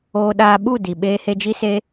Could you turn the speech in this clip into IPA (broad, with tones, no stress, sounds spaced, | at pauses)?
oː˧ ɗ aː˧ ɓ u˦˨ d i˨ ɓ eː˧ h e˧ d͡ʒ i˦ s e˦